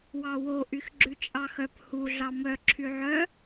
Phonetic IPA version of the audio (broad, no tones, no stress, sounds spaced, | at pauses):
w ɑ w o ʔ y x ɡ͡ǁ ʉ t͡ʃʼ ɑ x œ p h u ɮ ɑ m œ ǁʰ y ʕ œ